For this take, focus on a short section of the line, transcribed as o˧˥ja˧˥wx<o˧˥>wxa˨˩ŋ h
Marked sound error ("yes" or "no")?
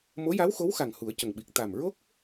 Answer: no